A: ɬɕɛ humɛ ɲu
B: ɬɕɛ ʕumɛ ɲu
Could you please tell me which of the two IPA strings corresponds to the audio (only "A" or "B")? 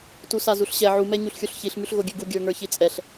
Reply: B